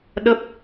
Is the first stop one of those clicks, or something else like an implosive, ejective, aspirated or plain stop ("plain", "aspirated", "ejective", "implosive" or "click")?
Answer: implosive